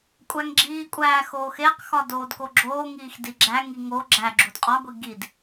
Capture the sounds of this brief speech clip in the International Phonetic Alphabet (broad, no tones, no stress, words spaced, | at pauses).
kʷʼæŋɡ͡ǁiːkʷʼæː xoːxeqxɒ doːdkoɡ͡ǁoːŋiːx diɡ͡ǁæŋi ŋo ɡ͡ǁæɡ͡ǁud qʼɒɡʷi ɡid